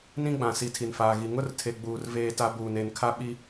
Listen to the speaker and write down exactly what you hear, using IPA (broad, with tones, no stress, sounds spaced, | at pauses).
n ĩ˦ ɡ͡b ã˨ s i˨ tʰ i˨ n f aː˨ ɣ i˨ ŋ ʊ˦ r tʰ e˨ ɡ͡b uː˨ r v eː˦ t a˦ b uː˨ n e˨ n kʰ a˦ ɓ i˦